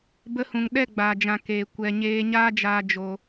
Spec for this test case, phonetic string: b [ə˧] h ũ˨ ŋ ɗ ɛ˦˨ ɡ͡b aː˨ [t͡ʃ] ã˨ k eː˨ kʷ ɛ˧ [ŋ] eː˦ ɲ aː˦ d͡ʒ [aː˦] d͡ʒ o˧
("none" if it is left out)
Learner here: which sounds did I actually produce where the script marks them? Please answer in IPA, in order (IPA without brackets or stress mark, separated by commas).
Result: ə˧, d͡ʒ, ɲ, aː˧